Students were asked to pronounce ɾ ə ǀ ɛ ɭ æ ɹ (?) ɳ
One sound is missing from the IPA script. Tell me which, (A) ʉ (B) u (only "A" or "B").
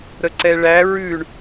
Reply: A